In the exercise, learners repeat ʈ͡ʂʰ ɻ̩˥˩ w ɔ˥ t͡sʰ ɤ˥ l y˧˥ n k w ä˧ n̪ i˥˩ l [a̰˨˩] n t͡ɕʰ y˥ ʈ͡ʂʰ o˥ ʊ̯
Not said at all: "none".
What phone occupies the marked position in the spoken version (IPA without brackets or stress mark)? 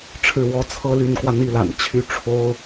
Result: a̰˨˩